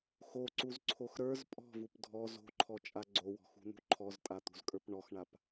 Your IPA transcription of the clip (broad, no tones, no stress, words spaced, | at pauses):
xoǀuzǀʰox ɾə˞z pʼɔ̤vup dʱɔ zo̤ǃʰɔt͡ʃʼa ɡ͡ǀowɔ̤xṳn̪ṳ ǃʰɔztʼat̪ṳzkʼə˞p ɳɔxɳap